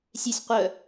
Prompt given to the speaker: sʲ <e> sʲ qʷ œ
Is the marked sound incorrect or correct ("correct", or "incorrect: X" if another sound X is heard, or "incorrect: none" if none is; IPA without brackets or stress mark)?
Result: correct